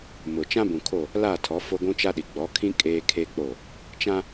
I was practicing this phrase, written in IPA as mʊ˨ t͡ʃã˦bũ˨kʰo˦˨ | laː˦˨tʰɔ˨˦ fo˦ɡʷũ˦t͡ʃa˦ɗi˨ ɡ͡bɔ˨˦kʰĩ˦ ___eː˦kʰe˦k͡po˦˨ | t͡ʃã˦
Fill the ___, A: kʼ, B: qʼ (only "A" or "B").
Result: A